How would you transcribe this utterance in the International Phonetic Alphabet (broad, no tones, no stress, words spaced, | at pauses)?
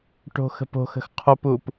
ʈo̤xə̤po̤xə̤x qʰopup